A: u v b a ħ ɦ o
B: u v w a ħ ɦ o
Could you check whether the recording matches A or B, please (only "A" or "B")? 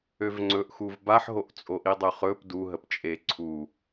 A